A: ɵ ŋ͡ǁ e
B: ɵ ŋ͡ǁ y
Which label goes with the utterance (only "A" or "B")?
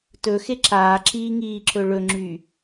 B